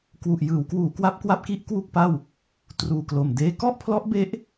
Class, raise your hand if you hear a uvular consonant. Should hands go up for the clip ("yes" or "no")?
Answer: no